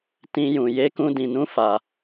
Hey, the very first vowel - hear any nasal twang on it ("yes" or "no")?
yes